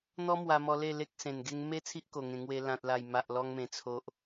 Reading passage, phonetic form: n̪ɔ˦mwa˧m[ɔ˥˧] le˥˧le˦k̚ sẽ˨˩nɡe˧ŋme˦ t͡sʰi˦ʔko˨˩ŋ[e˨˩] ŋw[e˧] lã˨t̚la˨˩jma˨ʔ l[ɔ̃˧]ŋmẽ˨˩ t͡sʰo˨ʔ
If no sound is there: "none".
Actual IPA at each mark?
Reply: ɔ˧, ẽ˨˩, e˧, ɔ˧

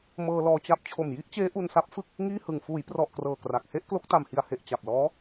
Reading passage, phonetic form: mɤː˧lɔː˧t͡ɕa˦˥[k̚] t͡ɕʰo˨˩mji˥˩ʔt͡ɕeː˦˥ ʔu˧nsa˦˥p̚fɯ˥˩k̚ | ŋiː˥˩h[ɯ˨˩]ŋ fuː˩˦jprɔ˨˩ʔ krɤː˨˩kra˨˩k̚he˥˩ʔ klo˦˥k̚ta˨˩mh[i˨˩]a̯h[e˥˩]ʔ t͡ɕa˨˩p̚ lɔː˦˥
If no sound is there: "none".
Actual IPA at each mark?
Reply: p̚, ɯ˨˩, i˨˩, e˨˩

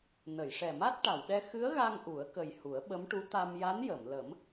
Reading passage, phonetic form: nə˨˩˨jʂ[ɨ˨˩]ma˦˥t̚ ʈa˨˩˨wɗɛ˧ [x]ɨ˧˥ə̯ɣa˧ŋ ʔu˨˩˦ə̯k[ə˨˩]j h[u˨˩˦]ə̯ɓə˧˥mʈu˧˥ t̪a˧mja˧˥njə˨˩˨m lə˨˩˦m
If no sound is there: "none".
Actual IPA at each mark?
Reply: ɛ˨˩, x, ə˨˩, u˨˩˦

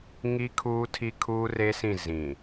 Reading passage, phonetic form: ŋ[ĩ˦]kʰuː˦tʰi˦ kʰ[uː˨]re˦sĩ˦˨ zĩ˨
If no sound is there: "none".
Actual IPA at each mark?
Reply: i˦, uː˦

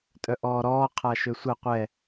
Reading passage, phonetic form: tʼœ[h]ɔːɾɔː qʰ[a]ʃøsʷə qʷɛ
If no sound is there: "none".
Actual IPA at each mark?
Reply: ʔ, a

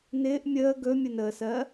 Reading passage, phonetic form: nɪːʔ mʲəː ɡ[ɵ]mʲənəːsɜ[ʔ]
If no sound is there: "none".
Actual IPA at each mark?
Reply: ɵ, none

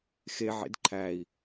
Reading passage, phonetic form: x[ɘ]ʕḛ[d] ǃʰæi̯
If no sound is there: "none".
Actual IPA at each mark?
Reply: e, d

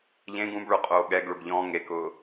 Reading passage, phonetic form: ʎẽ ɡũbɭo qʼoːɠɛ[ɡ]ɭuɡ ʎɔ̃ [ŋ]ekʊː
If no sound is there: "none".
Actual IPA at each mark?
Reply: ɡ, ŋ

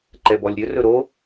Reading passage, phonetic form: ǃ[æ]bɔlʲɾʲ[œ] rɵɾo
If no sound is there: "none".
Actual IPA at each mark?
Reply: ɛ, ɵ

